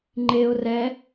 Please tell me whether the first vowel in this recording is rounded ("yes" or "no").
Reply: no